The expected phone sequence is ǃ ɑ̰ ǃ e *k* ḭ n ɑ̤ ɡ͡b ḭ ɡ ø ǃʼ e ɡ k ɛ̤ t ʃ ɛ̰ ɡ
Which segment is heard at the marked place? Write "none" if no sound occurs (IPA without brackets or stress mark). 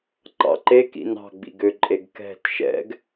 k